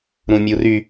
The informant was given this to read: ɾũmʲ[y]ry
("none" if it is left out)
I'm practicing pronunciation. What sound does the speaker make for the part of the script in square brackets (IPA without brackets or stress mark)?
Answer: u